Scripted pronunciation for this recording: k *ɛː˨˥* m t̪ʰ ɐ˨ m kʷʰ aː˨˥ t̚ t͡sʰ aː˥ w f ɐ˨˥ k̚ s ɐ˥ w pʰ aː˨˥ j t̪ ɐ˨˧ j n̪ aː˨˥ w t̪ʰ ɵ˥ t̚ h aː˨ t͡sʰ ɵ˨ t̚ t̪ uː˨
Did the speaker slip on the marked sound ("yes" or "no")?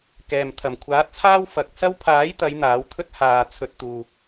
yes